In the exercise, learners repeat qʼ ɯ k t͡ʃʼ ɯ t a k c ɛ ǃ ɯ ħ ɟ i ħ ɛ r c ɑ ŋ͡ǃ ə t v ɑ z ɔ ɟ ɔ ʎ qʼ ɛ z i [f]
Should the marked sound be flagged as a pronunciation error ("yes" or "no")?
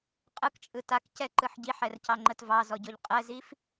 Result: no